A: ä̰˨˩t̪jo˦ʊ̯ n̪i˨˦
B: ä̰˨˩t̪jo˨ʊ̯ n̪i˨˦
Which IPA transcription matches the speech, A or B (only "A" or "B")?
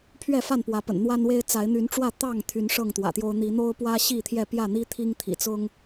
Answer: A